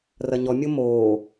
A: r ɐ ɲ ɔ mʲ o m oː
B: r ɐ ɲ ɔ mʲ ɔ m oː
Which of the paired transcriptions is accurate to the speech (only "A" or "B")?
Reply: A